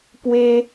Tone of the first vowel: high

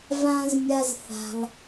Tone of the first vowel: high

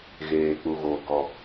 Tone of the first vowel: low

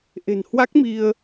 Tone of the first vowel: low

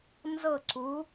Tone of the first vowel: falling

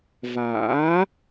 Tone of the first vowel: rising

